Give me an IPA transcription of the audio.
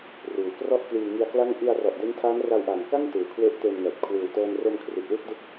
ruː˩˦krɔ˥˩ʔkliː˧ ŋi˧a̯kla˥˩ŋ ʔi˧a̯rɔ˨˩ʔ de˦˥ntʰaː˦˥n ra˧wʔa˨˩nka˥˩ŋ tɯː˨˩kʰwe˦˥ʔteː˧nŋɛː˨˩t̚ kʰwɯː˨˩wtɤː˧n ro˧mkʰri˨˩t̚ wɯ˥˩k̚dɯ˦˥k̚

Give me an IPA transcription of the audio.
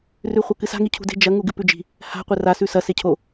rʉχʷɐkɨsa̤ ŋicʰṳde̤ d͡ʒɐ ŋuɡɨpʉd͡ʒi̤ | ha̤ qʷera sʉsɐ secʰo

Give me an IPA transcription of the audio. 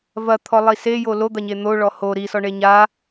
vɐt̪ʰɔlˠi sejo lod̪ɐɲe n̪oɭɔ ho ɾisɔɳe ɲa

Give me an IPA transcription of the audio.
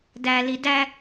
dæ lidæ

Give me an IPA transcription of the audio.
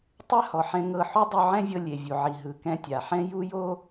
tˤɛ˥hɔ˩ħɛ̃˧ ŋɤ˧ ħu˥ dˤu˧ʕɛ̃˥vʲɤ˧ lʲe˩vʲu˩ʕi˩ ɦɯ˩ kɛ̃˧tʲa˩ħɛ̃˥ ju˥jo˥

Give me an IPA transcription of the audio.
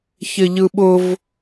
çɪʎɯɓʊv

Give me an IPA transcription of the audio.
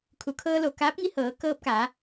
kʰu˩˧kʰɤː˧lo˩ kaː˧˥p̚ŋi˧hɤː˩˧ kɤː˧p̚kaː˩˧

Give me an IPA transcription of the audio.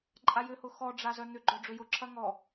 ǃʼajʏhʊ xɔɖ͡ʐazœ n̪ʏɡ͡ǃœ ɖ͡ʐʏjʊǁʰɐ ŋɔ

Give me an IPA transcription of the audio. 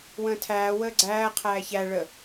wə̃ːtʰæː wəːɡ͡ǀæː qʰæːçæ ɭə

